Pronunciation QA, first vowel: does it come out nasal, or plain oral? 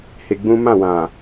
oral